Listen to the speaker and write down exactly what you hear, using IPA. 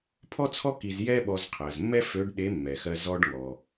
pʰ ɔ˥ t͡sʰ ɔ˥ k i˧ z j ɛ˥ ɓ ɔ˧ z qʰ ɜ˩ z mː ɛ˥ f ø˧˥ ɖ ɗ e˧˥ mː ɛ˩ x ɜ˧ z ɔ˧ ɖ ŋ ɔ˩

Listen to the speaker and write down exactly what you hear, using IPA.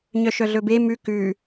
ɲ œ ʃ œ ɮ ɵ b e m ʉ k ʉ

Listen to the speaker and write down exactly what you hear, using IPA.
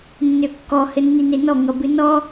nː ø kː ɔ h ɘ nː i n e n ɔ ŋ ʌ b ɨ n ɔ

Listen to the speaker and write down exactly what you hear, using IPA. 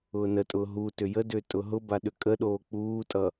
ʊː n ə tʼ ʊː ɦ u t ʏ j ə d ʏː tʼ ʊ ɦ ʊ b a ɗ ʏ kʼ ə ɗ oː k͡p uː tʼ ʌ

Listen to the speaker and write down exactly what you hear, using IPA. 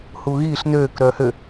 h uː ɣ iː ɬ n øː k ɾ œː h ø

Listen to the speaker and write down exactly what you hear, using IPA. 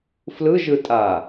f l ɯ ʒ ɯ tʼ a

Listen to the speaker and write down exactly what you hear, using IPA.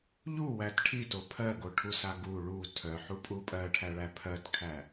ʎ u w æ t ʈʰ i t o pʰ ɜ ɡ o ʈʰ u s a ɡ u ɭ u tʰ œ ħ u pʼ u pʼ ɜ ʈʰ æ ɭ æ pʰ ɜ t kʰ æ

